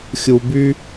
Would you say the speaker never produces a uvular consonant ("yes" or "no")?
yes